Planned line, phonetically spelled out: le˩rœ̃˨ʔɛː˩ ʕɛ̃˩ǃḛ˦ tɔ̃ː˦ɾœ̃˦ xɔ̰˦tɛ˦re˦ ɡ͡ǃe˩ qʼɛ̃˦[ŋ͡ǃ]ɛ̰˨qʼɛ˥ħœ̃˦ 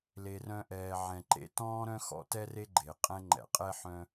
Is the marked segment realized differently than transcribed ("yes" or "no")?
no